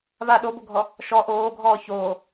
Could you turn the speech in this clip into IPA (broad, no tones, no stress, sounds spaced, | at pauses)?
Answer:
β a ɗ o b o ɡʱ ɔ | ʃ ɔ ʔ oː ɡʱ ɔː ç oː